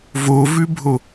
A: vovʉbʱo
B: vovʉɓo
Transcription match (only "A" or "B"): A